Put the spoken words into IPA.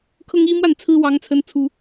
kʰɤ˦ŋi˦mwa˥˨nt͡sʰɹ̩˦ wɑ˦ŋt͡sʰə˦nt͡sʰu˦

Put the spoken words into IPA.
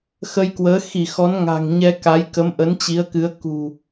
xə˧jkwəː˨˦ xi˧˩xɔ˨˦n ŋa̤˨˩ŋɲɛ˧ ka˨˦j kə˨˦mʔə˨˦nt͡ɕi˨˦ə̯kɨ˨˦ə̯ kṳ˨˩

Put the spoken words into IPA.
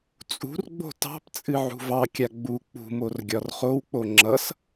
t͡sʼṳrɡ͡bo̤ tɑ̤pt͡sʼɨ ʕṳvɑkʲa ɡ͡bu k͡pṳmor ɡʲɒrχowk͡po ŋ͡ǁʌs

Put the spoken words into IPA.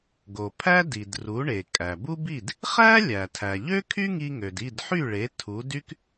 ɡo˩pʰæ˥di˩d ru˩˥ɳe˩ kʼæ˩bu˥bi˥˩d | χæ˥ lʲæ˩tʰæ˩ ʎø˥ kʰy˥ŋi˧ŋø˩d i˥˩dħy˥˩ɭe˩˥ tʰu˩˥dy˥k

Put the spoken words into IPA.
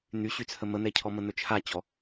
n̪yɕyt͡sʰə mən̪ɛcʰɔ mən̪ɵt͡ʃʰat͡ɕɔ

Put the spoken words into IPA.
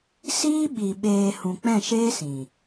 siː˦ɓi˨ ɓeː˨ hũ˨ k͡pɛ̃˦˨ʃeː˦sĩ˨

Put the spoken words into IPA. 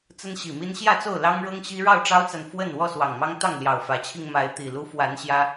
t͡sə˦nɕi˨˩mi˦n ɕjä˥˨t͡so˥˨ʊ̯lɑ˦ŋɻɤ˦ŋ ɕi˦ ɻɑ˥˨ʊ̯ʈ͡ʂɑ˦ʊ̯t͡sa˨n fwə˥˨n wɔ˥˨swɑ˨˩ŋmɑ˦ŋ t̪ɑ˥˨ŋljɑ˨˩ʊ̯fä˨˦t͡ɕʰi˧ŋ ma˨˦ɪ̯t̪i˨˩ lu˨˦fwa˨˦n ɕjä˦

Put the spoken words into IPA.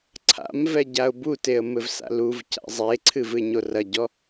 ǀʰa̰mvɛ ɟaʊ̯buteə̯ mɘvsa̰luvca̰ zˤeǀʰɨ vɨɪ̯ɲorɐɟɔ

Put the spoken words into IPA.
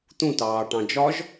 t̪ũtɑːʈɑ̃ d͡ʒɒʒ

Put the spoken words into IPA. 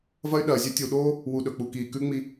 vɐ˦y̯ɗɐː˨zʲɵ˦ tʲu˨ɗoː˦ | wu˨ɗɵ˨ k͡pu˨kiː˨ kʉ˦ŋ͡mi˦

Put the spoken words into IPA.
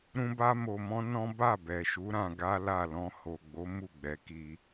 ɾũ˦ba˦mo˧mɔ̃˦ nɔ̃˦ ba˦˨bɛ˨ʃu˨˦ ɾã˧ɡa˦la˦˨ lɔ̃˧ ho˨ɡ͡bo˨˦ mu˦˨ɡ͡bɛ˨˦ki˧

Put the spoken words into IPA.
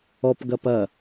ɔpɡɐ pɐ

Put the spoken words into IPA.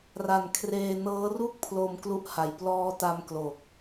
ra˨˩nkʰreː˧nɤː˦˥ ru˥˩k̚pʰlo˧m klu˦˥ʔha˨˩j plɔː˦˥ta˦˥mklo˨˩k̚

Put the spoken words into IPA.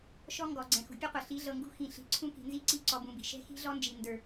ʃɔ˦ŋɡɔ˨ ɡ͡ǀɛ̃˨xṳ˨pʲu˦qʷɤ˨ ɬi˨˦ɮɤ˨ŋɡṳ˦ xĩ˨ɬi̤˨ǀʰũ˦ ki̤˨ nzi˦ ǀi˦ǀɔ˨bũ˨bi̤˨ ʃɛ̤˦xi̤˦ɮɔ˦nd͡ʒi˨ ndə˞˨

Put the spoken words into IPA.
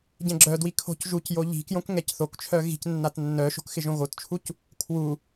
ɟɛ̃ɡ͡ǁœdwi kʰo̤cʒucjo ʎi̤kjõk ŋɛcθokt͡ʃʰœ ɣi̤c nːatnːœʃo̤k xɪʒõɣott͡ʃʰuc | kʰwu

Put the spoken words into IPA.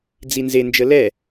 d͡zinze nd͡ʒəlɛ

